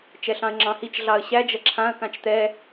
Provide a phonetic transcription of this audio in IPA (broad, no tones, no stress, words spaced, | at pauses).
t͡ʃɛɬɑ̃ə̯ŋ͡ǁɑ̃hit͡ʃ ɮɑə̯ɕæ d͡ʒɐǁʰãə̯kãt͡ʃ t̪ɛ